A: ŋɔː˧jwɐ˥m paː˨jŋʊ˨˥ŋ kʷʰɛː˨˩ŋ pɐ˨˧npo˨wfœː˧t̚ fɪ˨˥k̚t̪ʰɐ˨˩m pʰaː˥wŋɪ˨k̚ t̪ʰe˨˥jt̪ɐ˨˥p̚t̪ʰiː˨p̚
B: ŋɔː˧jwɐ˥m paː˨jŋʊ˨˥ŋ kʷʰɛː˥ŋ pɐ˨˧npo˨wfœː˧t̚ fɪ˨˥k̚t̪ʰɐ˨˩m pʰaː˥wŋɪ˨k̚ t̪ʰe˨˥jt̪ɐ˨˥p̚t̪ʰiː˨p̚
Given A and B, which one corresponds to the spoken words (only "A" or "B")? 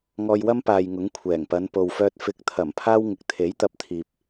A